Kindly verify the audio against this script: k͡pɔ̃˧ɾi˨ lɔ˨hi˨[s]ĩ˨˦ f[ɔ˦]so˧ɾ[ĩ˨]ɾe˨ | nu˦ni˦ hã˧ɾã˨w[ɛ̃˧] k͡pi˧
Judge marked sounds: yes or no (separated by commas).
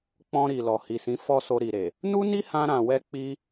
yes, yes, no, no